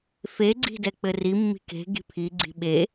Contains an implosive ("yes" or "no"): yes